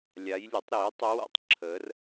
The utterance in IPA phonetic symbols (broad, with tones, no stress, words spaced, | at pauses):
lʲa˧˥jlʲo˩˥tˤɾiː˩˥tˤ o˧˥wa̰˨tˤ ǁʰəː˧˥r